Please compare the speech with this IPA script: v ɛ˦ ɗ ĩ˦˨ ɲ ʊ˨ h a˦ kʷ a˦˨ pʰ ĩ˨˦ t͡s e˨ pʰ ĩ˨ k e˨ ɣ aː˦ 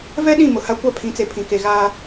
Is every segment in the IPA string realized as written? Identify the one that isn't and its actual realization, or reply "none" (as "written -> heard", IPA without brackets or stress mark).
ɲ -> m